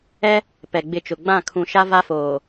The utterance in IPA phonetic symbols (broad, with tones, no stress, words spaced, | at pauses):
ɛ˦ | pɛ˨ɡ͡bɪ˦˨t͡ʃʊ˨ ɡ͡bã˦˨kʰũ˨ʃa˦ va˦foː˨